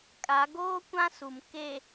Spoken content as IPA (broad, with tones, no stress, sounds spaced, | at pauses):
kʼ a˨˦ ɡ oː˦ kʷ ã˦ s u˨ m k e˨